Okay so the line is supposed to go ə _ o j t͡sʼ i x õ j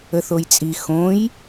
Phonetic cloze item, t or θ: θ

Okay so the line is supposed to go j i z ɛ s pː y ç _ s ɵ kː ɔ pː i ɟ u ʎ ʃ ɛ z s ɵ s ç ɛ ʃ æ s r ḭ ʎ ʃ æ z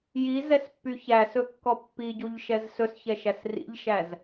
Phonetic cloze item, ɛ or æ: æ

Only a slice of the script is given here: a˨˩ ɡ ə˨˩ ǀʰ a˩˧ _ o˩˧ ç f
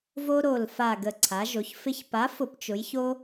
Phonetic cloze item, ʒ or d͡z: ʒ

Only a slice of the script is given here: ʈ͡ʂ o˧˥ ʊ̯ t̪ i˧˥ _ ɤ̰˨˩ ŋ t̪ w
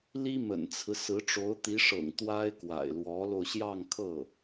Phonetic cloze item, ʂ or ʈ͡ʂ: ʂ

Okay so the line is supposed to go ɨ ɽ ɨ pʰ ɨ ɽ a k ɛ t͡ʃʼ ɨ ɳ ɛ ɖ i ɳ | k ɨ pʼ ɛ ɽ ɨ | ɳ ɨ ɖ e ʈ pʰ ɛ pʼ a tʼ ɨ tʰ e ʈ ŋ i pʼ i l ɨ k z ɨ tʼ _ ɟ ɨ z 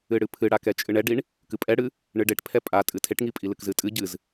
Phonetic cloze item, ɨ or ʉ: ɨ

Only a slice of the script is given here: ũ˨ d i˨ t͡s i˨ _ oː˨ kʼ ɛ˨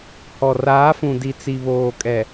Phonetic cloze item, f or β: β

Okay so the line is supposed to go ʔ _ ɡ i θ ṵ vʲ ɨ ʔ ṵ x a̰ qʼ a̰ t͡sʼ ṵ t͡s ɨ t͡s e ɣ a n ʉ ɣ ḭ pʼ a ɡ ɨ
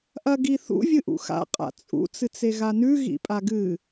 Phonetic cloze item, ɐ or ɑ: ɐ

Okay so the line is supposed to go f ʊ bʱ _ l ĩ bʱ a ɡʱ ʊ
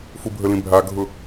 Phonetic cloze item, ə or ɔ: ə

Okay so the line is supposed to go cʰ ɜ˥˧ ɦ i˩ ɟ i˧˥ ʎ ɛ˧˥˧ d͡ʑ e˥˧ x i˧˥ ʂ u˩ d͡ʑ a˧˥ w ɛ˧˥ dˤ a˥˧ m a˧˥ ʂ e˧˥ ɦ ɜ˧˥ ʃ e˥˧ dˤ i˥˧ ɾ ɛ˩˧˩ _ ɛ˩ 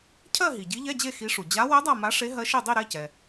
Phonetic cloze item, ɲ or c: c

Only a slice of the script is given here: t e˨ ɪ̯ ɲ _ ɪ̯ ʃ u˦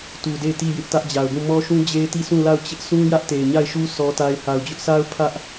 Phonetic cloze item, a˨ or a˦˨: a˦˨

